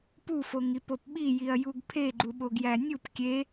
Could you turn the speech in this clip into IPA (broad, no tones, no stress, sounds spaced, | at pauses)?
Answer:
p u f o ŋ i p o p ɓ i j i ɐ̯ j u ɡ pʰ e ɡ͡ǃ u ɓ o ɡ j æ nʲ u p kʲ e